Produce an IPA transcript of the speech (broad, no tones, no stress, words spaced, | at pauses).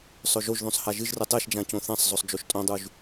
sˤɵʒoʒðõsˤ haʒɨʒrɨ tˤeʃd͡ʒã cõθãsˤzˤosˤ d͡ʒoʃtʼõdˤuʒ